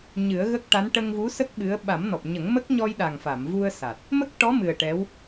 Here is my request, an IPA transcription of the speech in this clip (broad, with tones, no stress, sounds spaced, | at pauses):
ɲ ɨ˨˩˦ ə̯ ɣ ə˦˥ k̚ ʈ a˧˥ n ʈ ə˧ ŋ v u˧˥ s ə˦˥ k̚ ɓ ɨ˧˥ ə̯ ɓ a˨˩˦ m n ɔ˨˩ p̚ ɲ ə˨˩˦ ŋ m ə˦˥ k̚ ɲ ɔ˧ j ɗ a˨˩ ŋ f a˨˩˨ m v u˧ ə̯ s a˨˩ t̚ | m ə˦˥ k̚ ʈ ɔ˧˥ m ɨ˨˩ ə̯ ʈ ɛ˧˥ w